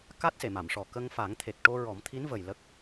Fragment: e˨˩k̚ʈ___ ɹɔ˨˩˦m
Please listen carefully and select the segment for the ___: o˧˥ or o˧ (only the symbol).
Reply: o˧